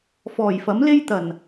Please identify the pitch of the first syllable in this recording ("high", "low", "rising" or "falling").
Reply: low